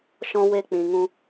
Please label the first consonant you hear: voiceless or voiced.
voiceless